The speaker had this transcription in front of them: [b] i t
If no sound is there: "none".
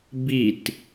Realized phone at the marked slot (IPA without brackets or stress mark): b